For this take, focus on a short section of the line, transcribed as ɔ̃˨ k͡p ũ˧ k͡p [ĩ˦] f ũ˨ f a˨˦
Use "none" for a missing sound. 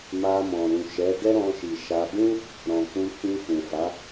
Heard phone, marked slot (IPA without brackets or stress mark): ĩ˧